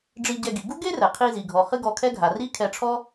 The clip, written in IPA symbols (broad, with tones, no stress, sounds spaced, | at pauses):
ɖ͡ʐ i˧ ɟ ɛ˧ ɡ i˩ ɡ u˥ ɡ e˥ r ɛ˩ qʰ i˧ z i˩ ɡʱ ɔ˩ χ ɨ˥ ɡ ɔ˧ kʰ ɛ˥ ɡʱ a˩ r i˥ kʰ ɛ˧ ʈ͡ʂʰ ɔ˥